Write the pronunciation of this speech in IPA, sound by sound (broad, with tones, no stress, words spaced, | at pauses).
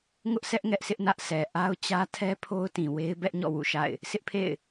ŋʊ˦ʔsʰɛ˦ʔ ŋɛ˦ʔsɪ˦ʔnä˦ʔ sɛ˨ ʔa˦ʊ̯t͡ɕä˦ tʰɛ˦pʰo˦ʊ̯tĩ˨ we˦ɪ̯ bɛ˦ʔɲɔ̰˦˨ wṵ˦˨ʃa̰˦˨ɪ̯ | sɪ˦ʔpʰḛ˦˨ɪ̯